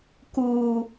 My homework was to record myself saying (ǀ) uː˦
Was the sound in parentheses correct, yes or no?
no